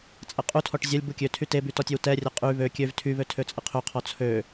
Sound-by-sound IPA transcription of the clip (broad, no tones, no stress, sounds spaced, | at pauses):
t͡sʼ ɐ qʼ u tʰ ɔ ʈ zʲ ɐ lʲ b u kʲ ø tʰ y t e b y t ɔ tʲ ø w t ɛ rʲ ɐ qʼ y β ø kʲ ø v tʰ y β ø tʰ ø t͡sʼ ə qʰ ø qʰ ɔ t͡sʰ ø